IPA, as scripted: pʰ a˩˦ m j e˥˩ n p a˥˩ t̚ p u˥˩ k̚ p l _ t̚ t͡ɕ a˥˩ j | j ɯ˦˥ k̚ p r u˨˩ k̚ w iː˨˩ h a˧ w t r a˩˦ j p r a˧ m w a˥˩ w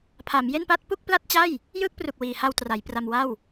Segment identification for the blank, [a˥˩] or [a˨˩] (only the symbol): a˥˩